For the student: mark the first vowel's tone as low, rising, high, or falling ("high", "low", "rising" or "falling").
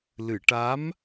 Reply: low